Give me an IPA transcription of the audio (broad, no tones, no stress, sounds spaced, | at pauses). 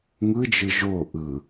ŋ ɯ d͡ʒ ɯ ʒ o ʔ ɯ